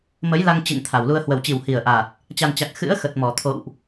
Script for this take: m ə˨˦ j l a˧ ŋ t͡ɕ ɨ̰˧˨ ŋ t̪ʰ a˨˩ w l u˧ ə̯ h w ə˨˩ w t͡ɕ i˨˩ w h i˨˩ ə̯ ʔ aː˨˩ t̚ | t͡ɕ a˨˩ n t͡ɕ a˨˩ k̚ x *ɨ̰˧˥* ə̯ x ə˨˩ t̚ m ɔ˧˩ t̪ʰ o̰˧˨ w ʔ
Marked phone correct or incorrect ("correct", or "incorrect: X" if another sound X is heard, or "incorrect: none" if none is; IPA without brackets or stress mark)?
correct